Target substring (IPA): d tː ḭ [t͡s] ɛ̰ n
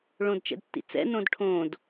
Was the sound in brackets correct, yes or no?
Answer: yes